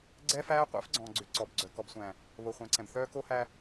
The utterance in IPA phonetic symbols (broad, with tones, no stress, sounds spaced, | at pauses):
ɡ͡ǀ ɛ˦ f æː˦ qʷ æ̰˦ f ɡ͡ǀ ɔ̃ː˨ ɡ͡ǀ ʏ˨ ǀ ɔ˨ b ɡ͡ǀ œ˨ k ɔ˨ b sʷ æ̃ː˨ | β o˨ χʷ æ̃˨ ǀ ɛ̃˨ b θ œː˦ k o˦ h æ˦